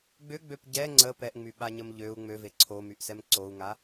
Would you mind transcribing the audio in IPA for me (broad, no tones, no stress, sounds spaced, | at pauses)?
ɡ͡b ʏ ɡ͡b ø p ɟ ɛ ŋ͡ǀ ə p ɛ ʔ ŋ͡m y ɓ a ɲ ə m ʎ ø u̯ ŋ͡m ø v e ǀʰ o m y ʔ s ɛ m ǀ o u̯ ŋ a